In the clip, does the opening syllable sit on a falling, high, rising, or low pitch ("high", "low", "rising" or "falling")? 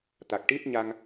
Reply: low